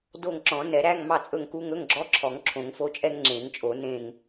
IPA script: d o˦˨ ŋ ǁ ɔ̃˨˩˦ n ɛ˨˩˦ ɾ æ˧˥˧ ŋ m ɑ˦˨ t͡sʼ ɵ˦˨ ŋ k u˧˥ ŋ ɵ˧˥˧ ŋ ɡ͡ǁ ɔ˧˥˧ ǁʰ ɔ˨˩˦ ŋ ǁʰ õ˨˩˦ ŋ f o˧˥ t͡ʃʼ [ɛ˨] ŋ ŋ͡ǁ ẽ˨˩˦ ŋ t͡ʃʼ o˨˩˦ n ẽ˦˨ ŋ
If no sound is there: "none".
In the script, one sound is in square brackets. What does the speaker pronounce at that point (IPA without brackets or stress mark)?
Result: ɛ˥